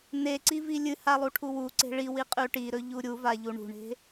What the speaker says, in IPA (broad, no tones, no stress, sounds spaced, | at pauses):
n e ǀ i v i lʲ ɨ h a lˠ u ʈʰ u w u ǀ e̤ ɭ i w i qʼ ʉ ʈ i ɾ ɵ ʎ u ɾʲ u v a ʎ u ɳ ṳ ɳ e̤